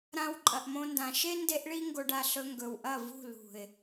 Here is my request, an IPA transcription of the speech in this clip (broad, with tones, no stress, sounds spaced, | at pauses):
ɾ ã˦ w ǃʼ ɐ˧ ʔ m õ˦ n d ã˧ ʃ e˦ n d e˦ ʔ ɭ i˦ ŋ ɡ o˧ ɖ a˧ ɬ ɵ˦ ŋ ɡ ɵ˨ w ʔ ɐ˦˨ v ṳ˦˨ l ṳ˨ ɪ̯